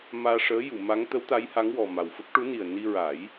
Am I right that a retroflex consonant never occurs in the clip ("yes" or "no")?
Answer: no